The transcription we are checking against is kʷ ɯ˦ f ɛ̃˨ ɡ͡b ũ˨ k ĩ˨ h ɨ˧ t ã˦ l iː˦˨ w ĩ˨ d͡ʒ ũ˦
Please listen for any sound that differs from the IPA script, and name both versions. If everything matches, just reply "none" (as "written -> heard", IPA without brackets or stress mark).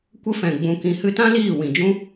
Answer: ɯ˦ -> ə˦